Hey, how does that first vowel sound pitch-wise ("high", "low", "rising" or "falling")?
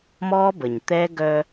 high